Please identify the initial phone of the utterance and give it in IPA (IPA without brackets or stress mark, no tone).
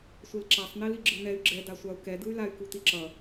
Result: sʷ